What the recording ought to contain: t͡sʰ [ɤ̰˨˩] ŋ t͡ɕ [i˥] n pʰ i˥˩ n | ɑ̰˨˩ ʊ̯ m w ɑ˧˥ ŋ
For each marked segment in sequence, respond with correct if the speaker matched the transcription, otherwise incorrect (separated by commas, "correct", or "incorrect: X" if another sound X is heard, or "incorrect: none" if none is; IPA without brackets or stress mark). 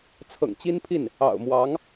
correct, correct